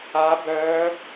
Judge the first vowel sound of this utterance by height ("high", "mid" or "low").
low